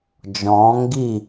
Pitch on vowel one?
rising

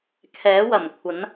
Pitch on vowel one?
rising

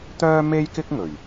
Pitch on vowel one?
high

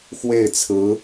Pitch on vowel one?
falling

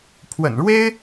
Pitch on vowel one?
low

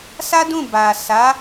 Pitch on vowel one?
high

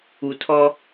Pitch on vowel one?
low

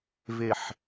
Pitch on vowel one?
falling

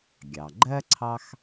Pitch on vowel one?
low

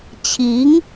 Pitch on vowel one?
rising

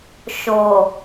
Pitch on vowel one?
low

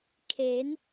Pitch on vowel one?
rising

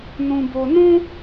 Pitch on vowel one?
low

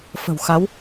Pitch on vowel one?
low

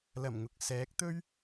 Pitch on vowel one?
low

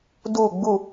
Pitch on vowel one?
falling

